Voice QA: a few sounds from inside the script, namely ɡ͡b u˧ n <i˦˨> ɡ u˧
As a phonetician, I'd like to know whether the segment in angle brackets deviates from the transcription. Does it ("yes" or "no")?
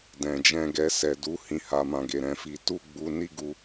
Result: yes